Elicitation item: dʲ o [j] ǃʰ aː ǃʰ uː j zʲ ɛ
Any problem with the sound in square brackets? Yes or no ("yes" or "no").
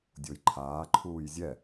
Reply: no